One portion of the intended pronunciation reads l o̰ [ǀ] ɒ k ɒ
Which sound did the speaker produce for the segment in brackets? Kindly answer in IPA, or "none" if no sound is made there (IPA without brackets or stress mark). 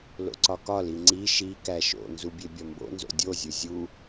ǀ